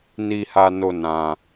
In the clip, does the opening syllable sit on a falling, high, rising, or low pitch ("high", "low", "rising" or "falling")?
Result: high